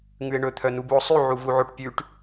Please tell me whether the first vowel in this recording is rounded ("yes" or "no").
yes